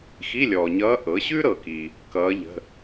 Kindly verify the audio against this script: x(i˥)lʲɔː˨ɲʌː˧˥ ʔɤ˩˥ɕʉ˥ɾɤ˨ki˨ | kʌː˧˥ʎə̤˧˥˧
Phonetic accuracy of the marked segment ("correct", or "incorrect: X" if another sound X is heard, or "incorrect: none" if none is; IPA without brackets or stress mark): incorrect: i˧˥˧